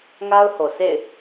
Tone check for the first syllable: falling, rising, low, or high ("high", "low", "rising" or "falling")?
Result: high